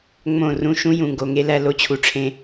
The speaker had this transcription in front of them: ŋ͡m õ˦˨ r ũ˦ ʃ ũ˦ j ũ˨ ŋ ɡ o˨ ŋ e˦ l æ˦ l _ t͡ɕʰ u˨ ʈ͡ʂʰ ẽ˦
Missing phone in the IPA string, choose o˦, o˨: o˦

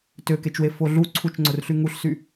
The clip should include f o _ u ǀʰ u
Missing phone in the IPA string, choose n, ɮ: ɮ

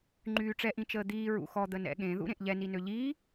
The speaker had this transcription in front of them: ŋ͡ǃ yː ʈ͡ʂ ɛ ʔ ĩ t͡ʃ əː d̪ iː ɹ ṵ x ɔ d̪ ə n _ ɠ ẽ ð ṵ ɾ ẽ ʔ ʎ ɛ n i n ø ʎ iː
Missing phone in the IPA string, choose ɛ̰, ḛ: ɛ̰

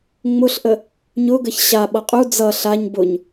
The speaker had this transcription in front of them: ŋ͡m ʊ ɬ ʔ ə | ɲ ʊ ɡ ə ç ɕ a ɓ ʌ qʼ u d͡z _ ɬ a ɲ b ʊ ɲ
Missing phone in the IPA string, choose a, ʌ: ʌ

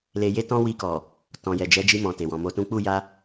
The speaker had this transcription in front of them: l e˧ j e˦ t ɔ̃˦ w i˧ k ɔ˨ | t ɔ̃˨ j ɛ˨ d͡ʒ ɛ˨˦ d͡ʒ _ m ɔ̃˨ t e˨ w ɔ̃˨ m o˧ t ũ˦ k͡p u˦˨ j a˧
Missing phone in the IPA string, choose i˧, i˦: i˧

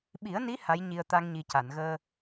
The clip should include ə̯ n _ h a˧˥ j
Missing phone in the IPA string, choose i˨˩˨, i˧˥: i˧˥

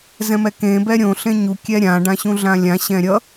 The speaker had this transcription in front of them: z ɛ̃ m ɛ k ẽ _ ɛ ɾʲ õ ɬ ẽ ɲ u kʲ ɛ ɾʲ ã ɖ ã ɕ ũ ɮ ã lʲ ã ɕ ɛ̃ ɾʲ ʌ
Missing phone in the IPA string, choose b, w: b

